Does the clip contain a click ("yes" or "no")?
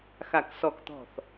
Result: no